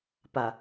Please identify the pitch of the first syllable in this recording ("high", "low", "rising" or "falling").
low